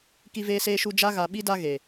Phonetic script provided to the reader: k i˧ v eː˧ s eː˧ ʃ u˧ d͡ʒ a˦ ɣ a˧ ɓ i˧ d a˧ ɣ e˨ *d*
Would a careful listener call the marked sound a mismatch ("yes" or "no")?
yes